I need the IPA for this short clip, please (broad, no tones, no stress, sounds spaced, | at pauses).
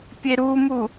pʲ e ɾ u m u